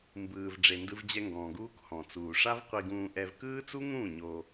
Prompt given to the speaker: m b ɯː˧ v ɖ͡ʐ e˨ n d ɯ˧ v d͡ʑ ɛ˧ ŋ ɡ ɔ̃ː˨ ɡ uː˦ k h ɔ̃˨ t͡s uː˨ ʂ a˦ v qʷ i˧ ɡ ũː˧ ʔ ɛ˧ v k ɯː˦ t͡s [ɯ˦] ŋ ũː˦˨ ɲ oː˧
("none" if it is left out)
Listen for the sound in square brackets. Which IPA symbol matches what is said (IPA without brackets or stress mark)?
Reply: u˦